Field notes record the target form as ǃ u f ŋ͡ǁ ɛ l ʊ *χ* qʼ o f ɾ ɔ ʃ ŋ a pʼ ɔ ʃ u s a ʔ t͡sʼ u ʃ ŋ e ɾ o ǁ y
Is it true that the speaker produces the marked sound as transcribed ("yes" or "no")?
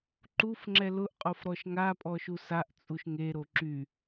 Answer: no